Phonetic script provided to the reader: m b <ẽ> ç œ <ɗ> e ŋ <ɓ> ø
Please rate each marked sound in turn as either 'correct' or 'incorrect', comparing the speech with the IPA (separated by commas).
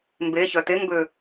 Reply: incorrect, incorrect, incorrect